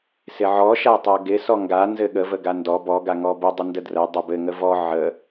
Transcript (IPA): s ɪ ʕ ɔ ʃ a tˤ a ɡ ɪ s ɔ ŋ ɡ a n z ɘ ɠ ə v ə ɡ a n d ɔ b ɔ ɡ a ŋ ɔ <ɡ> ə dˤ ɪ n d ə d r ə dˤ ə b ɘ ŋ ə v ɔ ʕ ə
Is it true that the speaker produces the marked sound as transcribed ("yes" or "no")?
no